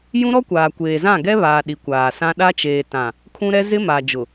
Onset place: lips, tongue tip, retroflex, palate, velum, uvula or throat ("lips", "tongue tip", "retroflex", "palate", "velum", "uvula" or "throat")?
palate